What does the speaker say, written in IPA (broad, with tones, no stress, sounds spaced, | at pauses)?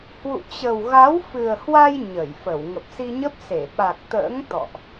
h w ṵ˧˨ t͡ɕ ə˨˩ w ɣ a˨˦ w f ɨ˨˩ ə̯ h w a˧ j ɲ ə˧˩ j f ə˧˩ w ŋ ə˨˩ p̚ s i˧ ɲ ə˦˥ p̚ s e˧˩ ɓ a˨˩ k̚ t̪ ə̰ː˧˥ ŋ t̪ ɔ̰˧˨ ʔ